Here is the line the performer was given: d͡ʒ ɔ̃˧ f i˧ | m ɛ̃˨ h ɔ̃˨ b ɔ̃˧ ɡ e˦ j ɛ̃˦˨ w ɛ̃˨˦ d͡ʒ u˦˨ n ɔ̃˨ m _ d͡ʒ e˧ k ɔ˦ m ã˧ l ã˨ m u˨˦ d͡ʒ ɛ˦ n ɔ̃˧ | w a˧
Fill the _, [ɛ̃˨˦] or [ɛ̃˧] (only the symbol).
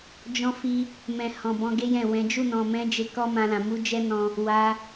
ɛ̃˨˦